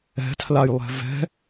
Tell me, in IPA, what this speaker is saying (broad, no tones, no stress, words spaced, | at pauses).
ɛ̤tʰlajlˠɛ̤ vɛ̤